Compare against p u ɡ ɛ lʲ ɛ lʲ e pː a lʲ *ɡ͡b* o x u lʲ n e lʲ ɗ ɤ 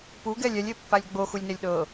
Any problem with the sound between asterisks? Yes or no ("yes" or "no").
no